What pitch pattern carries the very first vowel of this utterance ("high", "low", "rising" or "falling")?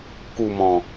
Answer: low